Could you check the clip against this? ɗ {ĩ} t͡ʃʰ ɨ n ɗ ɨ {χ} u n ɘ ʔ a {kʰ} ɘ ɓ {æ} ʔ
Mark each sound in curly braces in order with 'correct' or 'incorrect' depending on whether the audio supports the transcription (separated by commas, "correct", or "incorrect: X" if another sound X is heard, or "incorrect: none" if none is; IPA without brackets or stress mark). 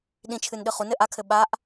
correct, correct, correct, incorrect: a